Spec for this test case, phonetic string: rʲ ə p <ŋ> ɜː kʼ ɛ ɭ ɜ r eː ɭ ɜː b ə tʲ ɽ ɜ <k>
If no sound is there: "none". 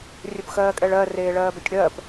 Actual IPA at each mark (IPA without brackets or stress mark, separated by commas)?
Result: x, p